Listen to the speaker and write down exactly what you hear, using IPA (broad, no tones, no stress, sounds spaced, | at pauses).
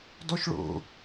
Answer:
d ɔ ʃ ɭ o̰